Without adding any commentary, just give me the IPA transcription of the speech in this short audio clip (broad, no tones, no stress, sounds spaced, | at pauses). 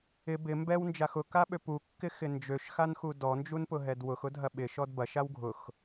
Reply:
ɪ b ɪ m b ɛ w n d͡ʒ a x ʊ k a ɓ ø p u kː ɪ x ɪ n d͡ʒ ø ʃ x a n x u d ɔ n d͡ʒ u n p ʊ ɦ ɛ d w ʊ x ʊ dʱ ɐ ɓ ɪ ʃ ɔ d b ɐ ʃ a w ɡʱ ʊ x